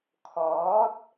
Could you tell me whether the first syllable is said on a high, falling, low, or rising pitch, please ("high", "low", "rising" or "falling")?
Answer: rising